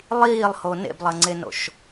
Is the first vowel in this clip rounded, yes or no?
no